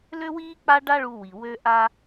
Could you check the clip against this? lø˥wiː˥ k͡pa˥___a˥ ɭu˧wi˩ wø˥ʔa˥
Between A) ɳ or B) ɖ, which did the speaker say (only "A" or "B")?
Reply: B